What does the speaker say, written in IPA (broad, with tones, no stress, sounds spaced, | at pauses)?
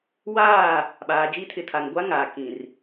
w aː˦˨ | ɓ aː˨ d͡ʒ i˦ tʰ ɪ˨ tʰ a˨ ŋ ɡʷ a˦ ŋ a˨ k ĩ˨ r